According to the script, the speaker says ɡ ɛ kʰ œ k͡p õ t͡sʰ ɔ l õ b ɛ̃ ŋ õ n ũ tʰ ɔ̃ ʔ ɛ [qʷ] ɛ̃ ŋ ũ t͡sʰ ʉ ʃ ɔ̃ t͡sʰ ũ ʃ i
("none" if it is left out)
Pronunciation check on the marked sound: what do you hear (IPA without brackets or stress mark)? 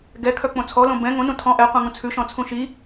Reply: qʷ